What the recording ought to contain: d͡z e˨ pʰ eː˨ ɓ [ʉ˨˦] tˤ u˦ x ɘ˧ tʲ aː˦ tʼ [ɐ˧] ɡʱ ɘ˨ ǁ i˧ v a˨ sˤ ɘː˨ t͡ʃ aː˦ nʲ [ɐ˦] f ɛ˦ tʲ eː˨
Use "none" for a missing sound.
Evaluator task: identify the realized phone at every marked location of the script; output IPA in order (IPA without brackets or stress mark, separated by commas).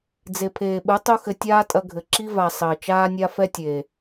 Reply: ɨ˨˦, ɐ˧, a˦